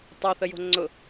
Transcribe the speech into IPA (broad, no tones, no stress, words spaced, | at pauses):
tˤœθəjo̤ ŋ͡ǀʊ